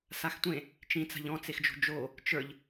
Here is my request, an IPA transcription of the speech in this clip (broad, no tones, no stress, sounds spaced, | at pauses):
s a x tʷ ẽ | t͡ʃ ĩ t͡s a̤ ʎ ɔ̃ t͡s e x d͡ʒ o̤ d͡ʒ o | t͡ʃ ə˞ ʎ